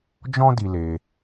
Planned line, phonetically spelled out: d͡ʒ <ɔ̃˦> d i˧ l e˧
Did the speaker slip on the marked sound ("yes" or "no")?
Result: no